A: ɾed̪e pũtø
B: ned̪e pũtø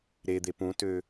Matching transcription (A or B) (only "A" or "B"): A